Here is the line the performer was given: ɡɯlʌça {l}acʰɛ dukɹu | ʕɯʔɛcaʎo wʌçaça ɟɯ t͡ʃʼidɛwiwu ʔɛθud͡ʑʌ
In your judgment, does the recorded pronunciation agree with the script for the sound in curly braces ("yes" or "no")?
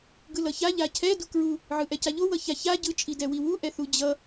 no